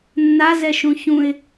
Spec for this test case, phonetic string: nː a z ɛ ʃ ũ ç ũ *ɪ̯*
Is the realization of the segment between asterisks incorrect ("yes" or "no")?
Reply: no